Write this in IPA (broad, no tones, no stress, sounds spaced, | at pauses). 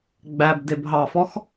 ɡ͡b æ b d e b ɦ ɑ f ɔ x